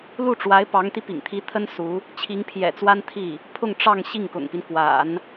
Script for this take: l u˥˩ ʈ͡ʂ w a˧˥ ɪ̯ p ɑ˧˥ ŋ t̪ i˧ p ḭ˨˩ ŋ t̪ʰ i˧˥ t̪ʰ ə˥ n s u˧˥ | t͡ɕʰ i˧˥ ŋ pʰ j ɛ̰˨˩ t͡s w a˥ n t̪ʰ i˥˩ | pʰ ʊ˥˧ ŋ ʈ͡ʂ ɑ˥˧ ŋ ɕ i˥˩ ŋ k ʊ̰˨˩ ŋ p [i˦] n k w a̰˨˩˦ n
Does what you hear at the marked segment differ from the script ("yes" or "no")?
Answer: no